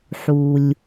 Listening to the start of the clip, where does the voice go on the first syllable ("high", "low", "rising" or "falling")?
low